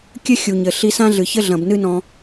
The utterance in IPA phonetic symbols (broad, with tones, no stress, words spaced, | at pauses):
kʲɘ˦xʲu˨ɲɘ˨ ɬi˧sã˦ɮɨ˨çɘ˦ ɮɐ̃˨bnɨ˦nɔ̃˧